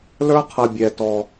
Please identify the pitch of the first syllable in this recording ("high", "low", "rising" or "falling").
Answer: high